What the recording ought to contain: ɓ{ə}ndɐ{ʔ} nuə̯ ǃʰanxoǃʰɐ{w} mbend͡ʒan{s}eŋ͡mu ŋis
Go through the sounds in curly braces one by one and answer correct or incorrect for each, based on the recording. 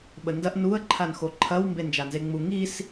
correct, correct, correct, incorrect

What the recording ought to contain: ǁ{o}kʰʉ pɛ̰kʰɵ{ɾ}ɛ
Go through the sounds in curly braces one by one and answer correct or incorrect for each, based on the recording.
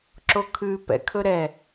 correct, correct

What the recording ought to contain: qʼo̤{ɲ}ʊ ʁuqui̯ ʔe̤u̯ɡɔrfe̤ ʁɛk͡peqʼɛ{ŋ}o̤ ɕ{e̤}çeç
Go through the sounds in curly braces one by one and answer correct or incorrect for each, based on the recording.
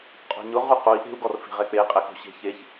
correct, incorrect, correct

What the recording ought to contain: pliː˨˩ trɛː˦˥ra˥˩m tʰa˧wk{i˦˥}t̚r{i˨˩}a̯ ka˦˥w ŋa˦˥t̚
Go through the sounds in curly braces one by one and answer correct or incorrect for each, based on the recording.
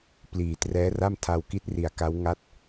correct, correct

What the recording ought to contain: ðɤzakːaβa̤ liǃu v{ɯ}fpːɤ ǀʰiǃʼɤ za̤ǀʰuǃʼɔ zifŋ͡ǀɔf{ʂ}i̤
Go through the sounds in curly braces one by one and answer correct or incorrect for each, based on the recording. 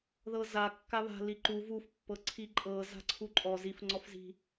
incorrect, incorrect

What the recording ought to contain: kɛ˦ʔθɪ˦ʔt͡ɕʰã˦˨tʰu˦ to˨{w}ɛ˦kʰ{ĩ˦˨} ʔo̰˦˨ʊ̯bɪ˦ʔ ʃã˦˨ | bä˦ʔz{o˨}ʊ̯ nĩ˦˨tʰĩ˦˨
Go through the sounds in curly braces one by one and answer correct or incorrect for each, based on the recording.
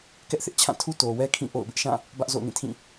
correct, correct, incorrect

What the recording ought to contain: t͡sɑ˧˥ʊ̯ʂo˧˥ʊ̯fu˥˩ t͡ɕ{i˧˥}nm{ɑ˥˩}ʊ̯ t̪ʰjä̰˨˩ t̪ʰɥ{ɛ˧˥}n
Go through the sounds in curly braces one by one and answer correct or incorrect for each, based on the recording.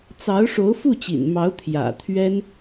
incorrect, incorrect, incorrect

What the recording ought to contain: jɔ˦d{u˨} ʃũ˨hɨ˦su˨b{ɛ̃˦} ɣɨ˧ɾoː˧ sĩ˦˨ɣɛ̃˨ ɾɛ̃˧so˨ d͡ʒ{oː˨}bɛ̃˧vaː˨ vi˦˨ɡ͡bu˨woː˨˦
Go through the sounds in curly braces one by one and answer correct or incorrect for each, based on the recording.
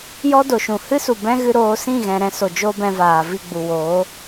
incorrect, correct, incorrect

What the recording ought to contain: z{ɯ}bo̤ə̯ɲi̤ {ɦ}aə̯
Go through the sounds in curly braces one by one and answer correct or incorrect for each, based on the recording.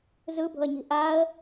correct, incorrect

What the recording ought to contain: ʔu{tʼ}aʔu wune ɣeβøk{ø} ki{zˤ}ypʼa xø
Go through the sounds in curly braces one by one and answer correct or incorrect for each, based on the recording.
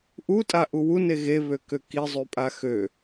correct, correct, correct

